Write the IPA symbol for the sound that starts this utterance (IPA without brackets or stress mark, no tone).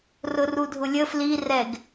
r